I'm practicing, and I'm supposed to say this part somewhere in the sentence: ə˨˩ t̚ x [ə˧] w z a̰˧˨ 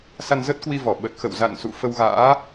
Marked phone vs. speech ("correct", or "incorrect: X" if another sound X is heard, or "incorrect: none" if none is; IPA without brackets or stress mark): incorrect: ə̰˧˨